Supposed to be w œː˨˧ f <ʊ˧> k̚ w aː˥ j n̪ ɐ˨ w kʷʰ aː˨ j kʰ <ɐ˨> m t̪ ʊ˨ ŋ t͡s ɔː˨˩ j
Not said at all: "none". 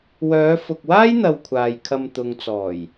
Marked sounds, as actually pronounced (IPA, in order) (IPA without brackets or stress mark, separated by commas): ʊ˨, ɐ˧